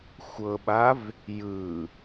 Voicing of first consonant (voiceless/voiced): voiceless